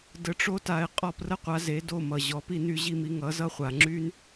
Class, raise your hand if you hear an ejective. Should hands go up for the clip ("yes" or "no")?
yes